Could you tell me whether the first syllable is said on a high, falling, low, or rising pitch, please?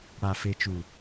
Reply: low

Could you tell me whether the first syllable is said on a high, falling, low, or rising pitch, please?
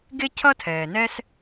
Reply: high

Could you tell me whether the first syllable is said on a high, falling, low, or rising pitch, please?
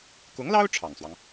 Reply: rising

